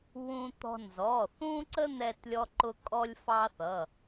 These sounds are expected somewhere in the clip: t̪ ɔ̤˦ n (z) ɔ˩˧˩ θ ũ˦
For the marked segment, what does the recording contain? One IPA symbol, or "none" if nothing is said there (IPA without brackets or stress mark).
z